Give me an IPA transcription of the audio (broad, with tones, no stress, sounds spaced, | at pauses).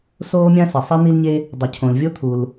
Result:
s oː˥ mʲ ã˥ s ɪ˩ sˤ i˥ n̪ i˥ l ɲ e˥ | dˤ ʊ˩ cʰ õ˩ l vʲ o˥ t̪ʰ u˩ l